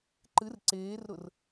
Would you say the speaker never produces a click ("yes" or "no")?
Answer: no